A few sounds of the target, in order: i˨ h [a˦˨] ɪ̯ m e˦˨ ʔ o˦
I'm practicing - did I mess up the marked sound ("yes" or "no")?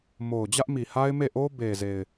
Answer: yes